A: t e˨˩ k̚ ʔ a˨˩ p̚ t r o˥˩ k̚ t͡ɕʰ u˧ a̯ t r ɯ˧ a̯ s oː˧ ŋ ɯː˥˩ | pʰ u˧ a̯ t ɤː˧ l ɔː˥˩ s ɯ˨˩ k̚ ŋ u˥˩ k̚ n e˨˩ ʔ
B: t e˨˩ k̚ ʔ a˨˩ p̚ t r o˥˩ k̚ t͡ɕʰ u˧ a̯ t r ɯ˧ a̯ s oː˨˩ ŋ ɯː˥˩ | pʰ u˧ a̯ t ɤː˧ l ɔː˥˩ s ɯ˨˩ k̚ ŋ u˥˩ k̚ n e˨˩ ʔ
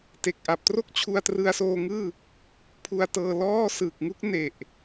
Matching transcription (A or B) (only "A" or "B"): A